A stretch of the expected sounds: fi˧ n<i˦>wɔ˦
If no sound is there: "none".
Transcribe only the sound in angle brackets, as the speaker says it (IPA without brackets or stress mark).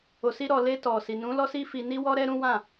i˦